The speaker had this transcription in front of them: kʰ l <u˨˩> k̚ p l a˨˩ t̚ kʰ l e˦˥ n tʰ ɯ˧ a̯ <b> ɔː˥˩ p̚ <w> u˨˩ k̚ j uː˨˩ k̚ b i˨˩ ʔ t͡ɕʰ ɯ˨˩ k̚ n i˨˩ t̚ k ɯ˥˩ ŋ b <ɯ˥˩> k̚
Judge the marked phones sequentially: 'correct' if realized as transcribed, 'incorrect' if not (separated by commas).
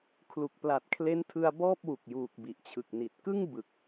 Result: correct, correct, correct, incorrect